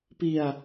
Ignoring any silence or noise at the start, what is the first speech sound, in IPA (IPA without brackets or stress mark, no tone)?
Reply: p